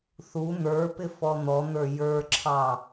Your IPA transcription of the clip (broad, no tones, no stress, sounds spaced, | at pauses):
θ u n̪ ə˞ p ɪ f ɔ n̪ ɔ n̪ ə˞ j ə˞ ǁʰ ɑ